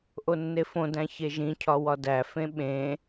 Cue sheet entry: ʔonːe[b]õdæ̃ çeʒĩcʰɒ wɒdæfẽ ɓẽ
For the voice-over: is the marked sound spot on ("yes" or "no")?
no